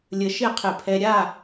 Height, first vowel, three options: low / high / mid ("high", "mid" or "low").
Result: mid